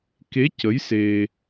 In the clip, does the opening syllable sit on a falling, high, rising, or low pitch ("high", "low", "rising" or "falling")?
rising